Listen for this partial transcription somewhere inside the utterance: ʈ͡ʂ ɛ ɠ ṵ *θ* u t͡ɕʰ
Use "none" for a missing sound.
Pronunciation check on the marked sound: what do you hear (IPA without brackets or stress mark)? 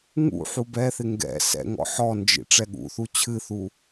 θ